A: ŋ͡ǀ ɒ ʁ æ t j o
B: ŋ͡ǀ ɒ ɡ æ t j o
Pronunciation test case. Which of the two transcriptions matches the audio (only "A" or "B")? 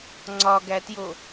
B